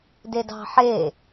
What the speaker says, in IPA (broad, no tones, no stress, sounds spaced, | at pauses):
d e d ɑ̤ ħ e